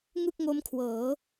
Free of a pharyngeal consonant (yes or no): yes